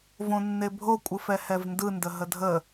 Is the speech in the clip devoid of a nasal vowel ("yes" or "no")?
no